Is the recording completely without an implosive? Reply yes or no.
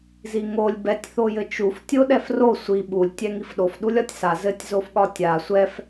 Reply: no